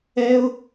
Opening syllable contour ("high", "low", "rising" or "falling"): high